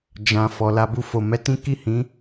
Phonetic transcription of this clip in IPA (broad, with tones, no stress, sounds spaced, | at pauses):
d͡ʒ ã˨ f ɔ˨ l a˧ b u˧ f o˨ m ɛ˧ t ĩ˦ k i˦˨ h ĩ˨˦